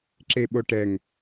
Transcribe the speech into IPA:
ǁ e ɓ o ʈ ɛ ŋ

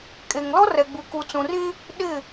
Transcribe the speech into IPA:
kʼ eː˨ ŋ l ɔ˦ r ɛ˨ ɡ͡b u˨ k u˨ t͡s ũ˨ r ĩ˦ | ɗ ɪ˦˨

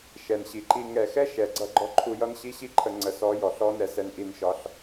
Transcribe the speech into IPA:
ʃ ɛ˨ n ɕ i˨ ǃ i˧ ŋ ɛ˨ x ɛ˦ ʃ ɛ˨ ɡ͡ǀ ʌ˧ ɡ͡ǃ ɔ˧ ǃʰ u˧ j ʌ˦ n ɕ i˦ ɕ i˦ ǃʰ ə˧ ŋ͡ǀ ə˨˦ s ɔ˨˦ j ɔ˨ ɬ ɔ˦ n ɛ˧ s ɛ˧ n ʔ i˧ n ʃ ɒ˧ ɬ

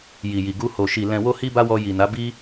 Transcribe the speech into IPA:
j i˨ j i˨ ɡ u˧ h o˨ ʃ i˨ l ɛ̃˨ w o˧ h i˧ b a˧ w ɔ˧ j i˨ n a˨˦ b i˧

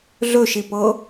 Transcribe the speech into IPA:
ɮ ɵ ʃ i p ɤ

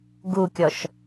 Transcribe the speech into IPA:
ɡ u kʲ ɔ ʃ

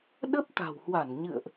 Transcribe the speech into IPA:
ɗ ə˦˥ p̚ t̪ a̤˨˩ w h w a˧˩ n ɲ ɨ̰˧˨ ə̯ ʔ

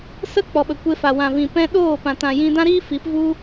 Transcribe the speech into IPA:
s ə˦ k͡p ɔ˨ ɓ ə˨ kʷ e˧ f a˨ w ã˨ v ĩ˨ p ɛ̃˧ ɗ oː˦˨ p ã˨ t ã˨ j ĩ˧ d ã˦ ɾ iː˦ f i˨˦ p v u˦

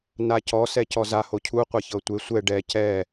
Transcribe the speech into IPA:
n a c ɔ s ɛ c ɔ z a h o cʰ u qʷ a ç ɤ tʷ e sʷ ɛ ɖ ɛ c ɛ

